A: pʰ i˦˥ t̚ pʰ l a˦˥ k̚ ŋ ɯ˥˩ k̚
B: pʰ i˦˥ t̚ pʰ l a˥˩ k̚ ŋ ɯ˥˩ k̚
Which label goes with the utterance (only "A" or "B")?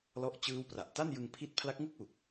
A